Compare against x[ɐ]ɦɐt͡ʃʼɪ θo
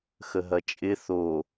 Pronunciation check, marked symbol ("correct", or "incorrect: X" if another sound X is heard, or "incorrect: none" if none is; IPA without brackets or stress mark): incorrect: ə